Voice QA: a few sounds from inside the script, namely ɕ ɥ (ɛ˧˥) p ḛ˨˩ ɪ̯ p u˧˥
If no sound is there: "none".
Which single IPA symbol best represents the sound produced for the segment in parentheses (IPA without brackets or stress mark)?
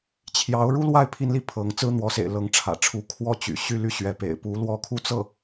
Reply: ɛ˧˥